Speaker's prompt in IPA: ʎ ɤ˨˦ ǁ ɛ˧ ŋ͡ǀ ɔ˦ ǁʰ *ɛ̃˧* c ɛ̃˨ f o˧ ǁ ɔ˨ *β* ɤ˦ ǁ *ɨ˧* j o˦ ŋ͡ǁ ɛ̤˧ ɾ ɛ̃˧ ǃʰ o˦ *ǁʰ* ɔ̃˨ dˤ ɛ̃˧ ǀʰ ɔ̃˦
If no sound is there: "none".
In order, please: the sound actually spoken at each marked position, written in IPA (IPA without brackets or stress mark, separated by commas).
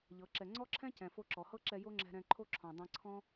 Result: ɛ̃˦, h, ɛ˧, ǁʰ